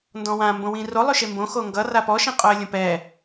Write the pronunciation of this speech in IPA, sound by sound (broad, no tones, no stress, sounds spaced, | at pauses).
n d ɔ̃ w ã m b õ w ĩ r o lˠ ʉ ʃ e m b õ x o ŋ ɡ ʌ r a p ɔ ʃ ĩ qʼ o ə̯ lʲ õ p ɛ